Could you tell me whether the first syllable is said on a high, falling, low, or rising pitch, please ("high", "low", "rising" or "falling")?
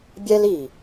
high